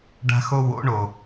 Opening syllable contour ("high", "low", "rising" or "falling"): high